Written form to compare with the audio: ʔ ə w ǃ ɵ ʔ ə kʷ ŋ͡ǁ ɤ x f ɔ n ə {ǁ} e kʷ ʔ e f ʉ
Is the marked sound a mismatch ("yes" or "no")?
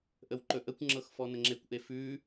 yes